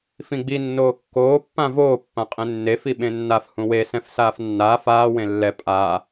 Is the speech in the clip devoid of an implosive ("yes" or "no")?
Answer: no